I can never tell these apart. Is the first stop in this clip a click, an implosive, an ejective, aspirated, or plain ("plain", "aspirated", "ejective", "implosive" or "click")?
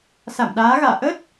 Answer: implosive